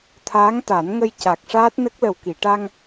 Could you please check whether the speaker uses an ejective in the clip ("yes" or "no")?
no